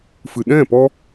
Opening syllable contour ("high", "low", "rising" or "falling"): low